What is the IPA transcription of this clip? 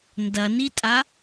ndɐnitʼa

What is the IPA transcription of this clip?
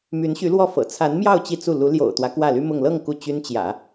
my˧˥nɕy˧˥lwɔ˥˩fɤ̰˨˩ t͡sʰa˧˥nmjɑ˥˧ʊ̯ t͡ɕi˥˧t͡su˥˩ lu˧˥ ljo̰˨˩ʊ̯t̪wä˦ kwä˥˩ly˥mʊ˥˧ŋ lɤ˥˧ŋ ku˥˩t͡ɕy˥n t͡ɕjä̰˨˩˦

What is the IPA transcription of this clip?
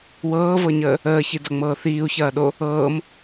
wɤːvɤɲəː | əːçidʌŋ͡mɤː θiːu̯çɐːɗo | ɤːm

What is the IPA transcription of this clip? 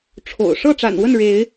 ʈ͡ʂʰo̰˨˩ʊ̯ ʂɤ˥˨ʈ͡ʂa̰˨˩nwə˥˨n ɻe˨˦ɪ̯

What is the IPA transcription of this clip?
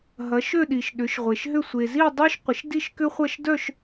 ɦɐ˨˦ʃø˥˧ɗi˨ʃ ɗʏ˨˦ʃʁʷe˨ʃɦʏ˥˧ sʷe˨zi˥˧dˤø˥ʃ qʷɪ˨˦ʃdi˥˧ʃkʏ˥χʷɐ˥˧ʃ dœ˥˧ʃ

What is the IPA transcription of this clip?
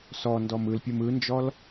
sɔndɔm ɯlpʲɯm ɯnd͡ʒɔl

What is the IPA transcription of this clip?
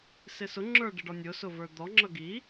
sɪsʊ ŋ͡ǁə˞ɖɪɖɔnʲʊ sʊvə˞d̪ɔ ŋ͡ǁʌɡi

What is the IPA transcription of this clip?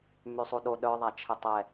mysˤuɗo ɗœ ðˤat͡ʃʰɪtˤɛ

